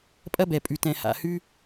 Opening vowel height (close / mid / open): open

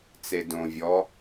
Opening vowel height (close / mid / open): mid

